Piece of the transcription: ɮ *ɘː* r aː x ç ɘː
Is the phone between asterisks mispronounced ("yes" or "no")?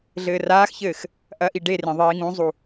no